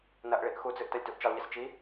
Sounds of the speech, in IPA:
nɐʔ ɭiʔxud͡zɨʔ tɐlʲtuʔt͡ʃilˠʎis t͡ʃi

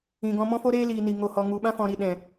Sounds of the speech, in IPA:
ĩ˨ɡɔ̃˧ mɔ̃˦fo˦ɾeː˦liː˨ ni˨ŋo˨hɔ˨ ŋu˨ɓã˦fɔ̃˨ ɾi˨ ɗɛ̃˨

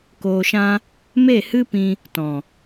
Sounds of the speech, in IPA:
koː˨ʃã˧ | me˦˨hɨ˦pĩ˧ | tɔ̃˨

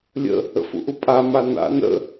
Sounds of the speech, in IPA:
lʲə̰ | ə̰fṵʔupʼa mana̰n ə̰

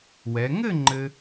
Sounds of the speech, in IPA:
wɛ˩˧ ŋɘ˥˧ ŋ͡ǃɘ˧

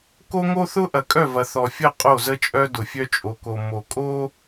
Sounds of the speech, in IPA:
ko˦ŋo˦θʊ˦ ʔɐ˨kʼœ˦˨vɐ˨ θɔ˨fʲə˦˨ qʼo˦˨zə˦t͡ʃʼœ˦ dʊ˨fʲœ˦t͡ʃʼo˨ko˨ mo˨kʼo˦

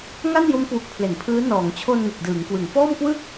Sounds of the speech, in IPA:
ŋa˥˩njo˦˥mkwu˨˩k̚ pʰle˩˦npʰɯː˦˥ nɔː˩˦ŋt͡ɕʰo˧n ŋɯ˨˩k̚dɯː˩˦ŋkwɯ˩˦ŋ fɔː˥˩mkwɯ˥˩k̚

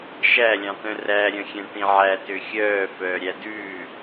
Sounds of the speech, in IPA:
ʃælʲɑ̃t̪œ̃ ræɾʲœ̃xʲɛ̃ ʈĩʕætø xʲœː fœːɾʲædʉː

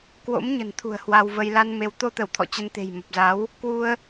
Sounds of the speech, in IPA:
kwo̰˧˥m ɲə̤˨˩nt̪ʰṳ˨˩ə̯ hwa˧wvə˧j la˧nme˨˦w t̪o˧t̪ə˧˩w t̪ʰɔ̰˧˨t͡ɕə˧nt̪e̤˨˩j mə˨˩p̚za˨˦w | kwu˧ə̯

